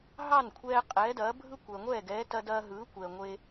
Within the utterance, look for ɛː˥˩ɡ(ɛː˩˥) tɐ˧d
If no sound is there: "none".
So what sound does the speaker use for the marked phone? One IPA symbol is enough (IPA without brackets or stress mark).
ɛː˩˥